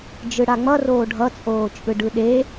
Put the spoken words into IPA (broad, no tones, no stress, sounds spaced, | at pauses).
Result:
d͡ʒ ɯ ɽ a ŋ͡m ʌ r oː ɖʱ ʌ t͡sʼ oː t͡ʃʼ ɯ ɖ ɯ ɗ e